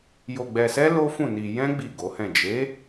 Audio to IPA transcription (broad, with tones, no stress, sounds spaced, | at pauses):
j o˧ ɡ͡b ɛ˧ s ɛ˦ l o˦ f ũ˦˨ n i˧ j ɛ̃˦ ɡ͡b i˦˨ ɡ o˨˦ h ɛ̃˦˨ d͡ʒ e˨˦